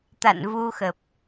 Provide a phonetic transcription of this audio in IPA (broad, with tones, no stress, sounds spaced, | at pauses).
t̪ a̰˧˨ n v u˧ x ə˨˩ p̚